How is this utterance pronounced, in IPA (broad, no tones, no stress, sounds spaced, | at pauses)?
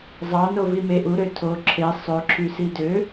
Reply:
zˤ ɑ n o v i m e ʔ u ɾ ø tʰ o ǁʰ e sˤ ø ǁʰ y s i d ø